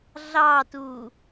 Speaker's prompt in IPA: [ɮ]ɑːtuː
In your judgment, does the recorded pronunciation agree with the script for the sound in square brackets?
yes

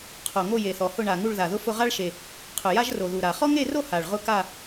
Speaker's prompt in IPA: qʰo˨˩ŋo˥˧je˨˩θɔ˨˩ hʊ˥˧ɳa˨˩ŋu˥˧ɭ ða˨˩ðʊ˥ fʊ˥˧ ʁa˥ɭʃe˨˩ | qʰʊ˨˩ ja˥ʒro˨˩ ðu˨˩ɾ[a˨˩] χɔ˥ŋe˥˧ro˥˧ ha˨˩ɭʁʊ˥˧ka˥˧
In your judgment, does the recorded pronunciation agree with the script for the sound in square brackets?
yes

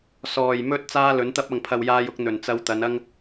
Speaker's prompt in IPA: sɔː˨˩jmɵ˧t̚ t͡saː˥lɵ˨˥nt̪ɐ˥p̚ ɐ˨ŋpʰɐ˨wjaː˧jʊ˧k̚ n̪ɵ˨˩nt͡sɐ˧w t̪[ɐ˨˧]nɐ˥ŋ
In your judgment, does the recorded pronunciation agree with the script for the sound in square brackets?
yes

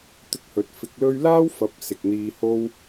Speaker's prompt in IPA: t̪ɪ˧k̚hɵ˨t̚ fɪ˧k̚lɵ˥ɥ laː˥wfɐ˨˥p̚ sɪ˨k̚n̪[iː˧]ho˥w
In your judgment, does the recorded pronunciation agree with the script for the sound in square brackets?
yes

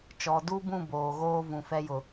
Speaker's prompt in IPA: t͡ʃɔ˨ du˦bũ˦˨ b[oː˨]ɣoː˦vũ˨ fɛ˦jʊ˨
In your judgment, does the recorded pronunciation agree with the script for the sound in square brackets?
yes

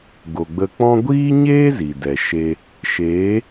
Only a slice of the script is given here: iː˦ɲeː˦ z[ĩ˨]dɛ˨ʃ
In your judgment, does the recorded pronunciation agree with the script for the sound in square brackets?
no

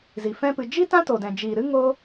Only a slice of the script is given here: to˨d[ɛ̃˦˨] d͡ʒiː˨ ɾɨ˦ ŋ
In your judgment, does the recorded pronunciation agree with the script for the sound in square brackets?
no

